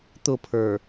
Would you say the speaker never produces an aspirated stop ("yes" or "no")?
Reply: no